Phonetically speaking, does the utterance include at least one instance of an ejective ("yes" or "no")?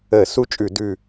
yes